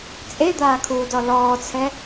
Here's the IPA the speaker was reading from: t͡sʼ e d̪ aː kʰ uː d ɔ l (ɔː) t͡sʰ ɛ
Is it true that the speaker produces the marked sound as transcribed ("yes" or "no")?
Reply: yes